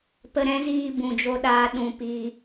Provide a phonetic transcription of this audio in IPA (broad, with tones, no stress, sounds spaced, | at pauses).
p ə˧ ɾ ɛ̃˦ z iː˧ b ũ˨ d͡ʒ o˧ ɗ aː˧ ɗ ũ˧ p iː˧